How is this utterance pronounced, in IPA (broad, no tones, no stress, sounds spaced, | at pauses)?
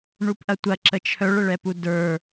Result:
ɳ u p ʔ ɐ tʷ ɐ ǁ ə t͡ʃʰ œ ɭ ə ɭ ɛ p u d ə˞